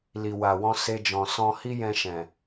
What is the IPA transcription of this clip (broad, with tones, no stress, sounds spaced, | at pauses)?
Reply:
l i˨ w a˨ w ɔ̃˧ s e˧ d͡ʒ ɔ̃˨ s ɔ̃˧ h i˦ j ɛ̃˧ ʃ ɛ̃˨